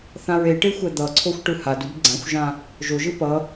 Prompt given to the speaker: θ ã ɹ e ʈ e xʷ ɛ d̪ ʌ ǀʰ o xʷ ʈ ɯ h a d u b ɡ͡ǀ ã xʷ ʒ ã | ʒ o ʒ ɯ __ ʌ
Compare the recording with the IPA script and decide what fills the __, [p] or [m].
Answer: p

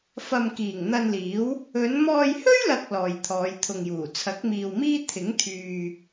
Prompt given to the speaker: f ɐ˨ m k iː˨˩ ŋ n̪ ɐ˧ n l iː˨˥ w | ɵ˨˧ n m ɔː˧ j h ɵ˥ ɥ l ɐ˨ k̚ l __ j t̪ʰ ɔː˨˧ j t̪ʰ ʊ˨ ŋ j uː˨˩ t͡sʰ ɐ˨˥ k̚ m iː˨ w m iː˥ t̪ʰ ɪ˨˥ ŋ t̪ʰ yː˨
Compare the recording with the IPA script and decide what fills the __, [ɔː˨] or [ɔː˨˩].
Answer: ɔː˨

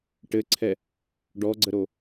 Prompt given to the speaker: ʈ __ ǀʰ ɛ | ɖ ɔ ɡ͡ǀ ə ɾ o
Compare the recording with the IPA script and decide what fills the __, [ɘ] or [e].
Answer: ɘ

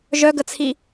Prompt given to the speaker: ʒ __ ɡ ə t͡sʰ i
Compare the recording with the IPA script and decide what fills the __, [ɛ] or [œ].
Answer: œ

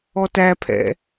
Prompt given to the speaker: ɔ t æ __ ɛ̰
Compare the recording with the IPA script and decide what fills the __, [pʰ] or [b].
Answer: pʰ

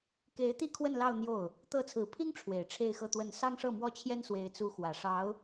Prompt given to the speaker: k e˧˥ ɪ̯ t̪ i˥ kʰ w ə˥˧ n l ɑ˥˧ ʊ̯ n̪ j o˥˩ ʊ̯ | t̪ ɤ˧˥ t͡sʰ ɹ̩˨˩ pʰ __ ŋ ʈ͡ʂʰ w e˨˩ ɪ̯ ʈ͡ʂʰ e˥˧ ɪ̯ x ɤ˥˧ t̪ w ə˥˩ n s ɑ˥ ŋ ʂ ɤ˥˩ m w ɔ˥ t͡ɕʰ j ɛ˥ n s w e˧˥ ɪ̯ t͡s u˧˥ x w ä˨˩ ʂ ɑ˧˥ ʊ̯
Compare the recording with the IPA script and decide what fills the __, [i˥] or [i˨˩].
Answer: i˥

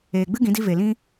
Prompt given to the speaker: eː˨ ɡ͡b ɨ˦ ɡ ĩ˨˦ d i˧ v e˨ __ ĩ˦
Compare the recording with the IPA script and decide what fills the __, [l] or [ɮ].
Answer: l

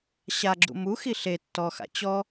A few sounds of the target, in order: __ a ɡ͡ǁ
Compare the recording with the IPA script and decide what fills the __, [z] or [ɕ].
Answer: ɕ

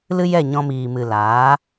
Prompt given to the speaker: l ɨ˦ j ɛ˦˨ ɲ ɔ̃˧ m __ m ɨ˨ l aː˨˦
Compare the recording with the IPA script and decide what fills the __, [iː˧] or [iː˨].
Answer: iː˨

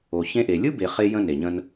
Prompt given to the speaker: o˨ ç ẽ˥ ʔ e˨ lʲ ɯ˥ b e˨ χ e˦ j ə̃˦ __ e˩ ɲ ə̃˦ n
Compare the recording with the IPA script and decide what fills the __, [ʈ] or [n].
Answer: n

